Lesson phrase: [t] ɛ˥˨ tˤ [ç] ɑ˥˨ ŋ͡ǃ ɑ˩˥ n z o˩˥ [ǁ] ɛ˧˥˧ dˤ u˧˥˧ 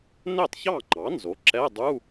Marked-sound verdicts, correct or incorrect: incorrect, correct, correct

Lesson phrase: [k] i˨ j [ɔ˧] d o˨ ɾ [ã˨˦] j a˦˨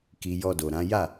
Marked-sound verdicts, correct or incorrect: correct, correct, correct

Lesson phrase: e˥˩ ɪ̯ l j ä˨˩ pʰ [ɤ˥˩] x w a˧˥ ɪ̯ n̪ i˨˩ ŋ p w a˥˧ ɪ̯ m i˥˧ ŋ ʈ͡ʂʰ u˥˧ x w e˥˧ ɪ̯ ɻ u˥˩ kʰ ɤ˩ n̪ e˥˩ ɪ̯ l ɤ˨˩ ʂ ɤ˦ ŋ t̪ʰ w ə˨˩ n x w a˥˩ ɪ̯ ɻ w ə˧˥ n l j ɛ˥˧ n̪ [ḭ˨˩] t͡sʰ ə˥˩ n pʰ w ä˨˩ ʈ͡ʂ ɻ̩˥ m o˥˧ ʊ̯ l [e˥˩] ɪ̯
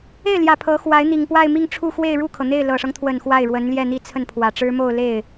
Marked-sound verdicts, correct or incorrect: incorrect, incorrect, correct

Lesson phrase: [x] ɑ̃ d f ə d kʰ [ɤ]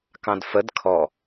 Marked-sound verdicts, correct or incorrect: incorrect, incorrect

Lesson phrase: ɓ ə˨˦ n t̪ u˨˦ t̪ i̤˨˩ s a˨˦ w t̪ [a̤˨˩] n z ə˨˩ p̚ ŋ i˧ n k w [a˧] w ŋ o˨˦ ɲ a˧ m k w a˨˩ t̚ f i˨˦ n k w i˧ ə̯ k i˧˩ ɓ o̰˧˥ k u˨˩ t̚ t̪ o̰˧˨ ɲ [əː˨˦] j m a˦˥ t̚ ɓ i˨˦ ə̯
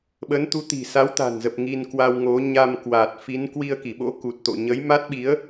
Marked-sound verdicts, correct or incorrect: correct, correct, incorrect

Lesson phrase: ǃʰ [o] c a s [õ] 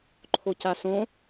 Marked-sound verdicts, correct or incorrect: correct, correct

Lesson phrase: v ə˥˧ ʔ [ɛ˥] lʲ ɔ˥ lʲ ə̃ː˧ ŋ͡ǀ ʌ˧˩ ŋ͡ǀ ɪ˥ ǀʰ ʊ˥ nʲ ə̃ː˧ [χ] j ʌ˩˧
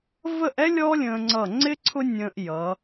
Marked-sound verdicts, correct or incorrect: correct, incorrect

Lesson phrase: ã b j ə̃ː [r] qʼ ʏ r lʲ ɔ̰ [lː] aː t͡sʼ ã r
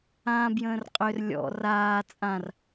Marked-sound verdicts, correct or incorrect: correct, incorrect

